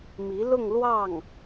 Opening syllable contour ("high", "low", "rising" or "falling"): rising